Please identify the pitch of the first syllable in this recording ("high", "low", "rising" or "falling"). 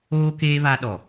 high